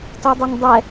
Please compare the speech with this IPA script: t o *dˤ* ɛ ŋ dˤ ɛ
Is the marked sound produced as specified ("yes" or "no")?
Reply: yes